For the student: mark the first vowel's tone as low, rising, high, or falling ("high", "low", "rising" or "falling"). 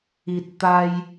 low